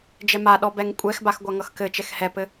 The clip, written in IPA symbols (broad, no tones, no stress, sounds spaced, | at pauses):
d͡ʒ ɛ m a ɗ ɔ b ɛ ŋ kʷʼ ɛ x b a x ɡʷ a ŋ ʌ x k ɘ t͡ʃ ɛ x h ɛ p ɘ